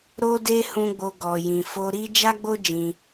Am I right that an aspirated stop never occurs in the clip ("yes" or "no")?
yes